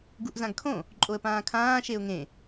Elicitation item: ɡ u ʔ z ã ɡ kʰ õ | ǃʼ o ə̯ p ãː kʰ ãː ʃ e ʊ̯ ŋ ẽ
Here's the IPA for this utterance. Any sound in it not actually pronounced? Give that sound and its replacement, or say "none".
none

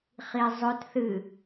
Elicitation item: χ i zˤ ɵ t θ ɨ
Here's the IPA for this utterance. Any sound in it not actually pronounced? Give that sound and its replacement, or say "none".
none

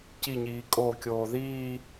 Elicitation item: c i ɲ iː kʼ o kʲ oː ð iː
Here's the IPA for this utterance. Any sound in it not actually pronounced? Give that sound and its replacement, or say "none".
none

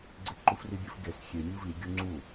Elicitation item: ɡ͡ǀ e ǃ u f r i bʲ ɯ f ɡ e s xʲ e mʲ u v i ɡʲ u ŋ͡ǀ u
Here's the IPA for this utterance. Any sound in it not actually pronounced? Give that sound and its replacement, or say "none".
none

